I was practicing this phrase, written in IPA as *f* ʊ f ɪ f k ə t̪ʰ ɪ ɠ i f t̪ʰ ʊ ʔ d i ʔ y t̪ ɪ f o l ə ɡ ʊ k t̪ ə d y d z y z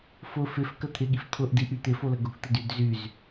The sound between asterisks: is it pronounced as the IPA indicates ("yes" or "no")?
yes